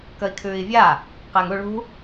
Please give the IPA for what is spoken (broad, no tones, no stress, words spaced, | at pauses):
kəi̯kʰʉːi̯vʲa | qɛːŋu ɭṳ